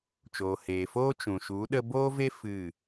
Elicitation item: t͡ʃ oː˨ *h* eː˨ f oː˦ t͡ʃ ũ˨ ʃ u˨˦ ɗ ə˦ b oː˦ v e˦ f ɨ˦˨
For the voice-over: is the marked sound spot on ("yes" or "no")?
yes